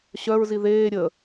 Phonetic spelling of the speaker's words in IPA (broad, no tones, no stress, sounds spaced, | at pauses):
ɕ œ ɹ z i ð eː ɾʲ ə